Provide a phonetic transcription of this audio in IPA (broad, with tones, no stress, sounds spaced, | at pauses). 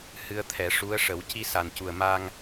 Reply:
h ɨ˧ ə̯ t̪ʰ ɛ˨˩˦ ʂ u˧˥ ə̯ ʂ ə˨˩˦ w c i˧ s a˨˩ n c u˨˩ ə̯ m a˧ ŋ